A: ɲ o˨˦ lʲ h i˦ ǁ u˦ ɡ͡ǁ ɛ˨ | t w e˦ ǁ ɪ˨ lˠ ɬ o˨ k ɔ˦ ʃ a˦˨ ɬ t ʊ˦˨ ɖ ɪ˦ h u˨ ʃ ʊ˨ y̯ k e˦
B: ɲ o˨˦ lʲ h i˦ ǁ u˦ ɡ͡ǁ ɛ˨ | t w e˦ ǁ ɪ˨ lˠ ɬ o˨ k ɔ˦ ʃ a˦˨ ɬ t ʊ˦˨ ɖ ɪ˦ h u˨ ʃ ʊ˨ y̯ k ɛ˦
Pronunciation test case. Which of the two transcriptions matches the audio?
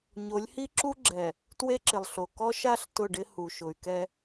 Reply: B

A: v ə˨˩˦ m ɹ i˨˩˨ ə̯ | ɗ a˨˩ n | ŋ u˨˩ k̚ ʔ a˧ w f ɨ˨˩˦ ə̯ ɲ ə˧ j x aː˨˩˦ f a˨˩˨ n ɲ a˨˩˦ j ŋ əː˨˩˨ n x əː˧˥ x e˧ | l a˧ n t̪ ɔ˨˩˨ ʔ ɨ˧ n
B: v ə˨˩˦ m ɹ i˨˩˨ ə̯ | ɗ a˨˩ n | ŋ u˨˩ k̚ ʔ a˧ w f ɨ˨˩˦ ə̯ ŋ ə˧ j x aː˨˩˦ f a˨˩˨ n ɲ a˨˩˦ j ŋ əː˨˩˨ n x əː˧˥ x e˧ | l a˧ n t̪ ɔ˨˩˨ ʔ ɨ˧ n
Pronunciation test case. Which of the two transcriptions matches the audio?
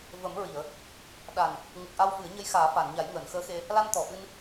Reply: A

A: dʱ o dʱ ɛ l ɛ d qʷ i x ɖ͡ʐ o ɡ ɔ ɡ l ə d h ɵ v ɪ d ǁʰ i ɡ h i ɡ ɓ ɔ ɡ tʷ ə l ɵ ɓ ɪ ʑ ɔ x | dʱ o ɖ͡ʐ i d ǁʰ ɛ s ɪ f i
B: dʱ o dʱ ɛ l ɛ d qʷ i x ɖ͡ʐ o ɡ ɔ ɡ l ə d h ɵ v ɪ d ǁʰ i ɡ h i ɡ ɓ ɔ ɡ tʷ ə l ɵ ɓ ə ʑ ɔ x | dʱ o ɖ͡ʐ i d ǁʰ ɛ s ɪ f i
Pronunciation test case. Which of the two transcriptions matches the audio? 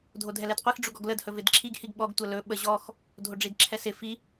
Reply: B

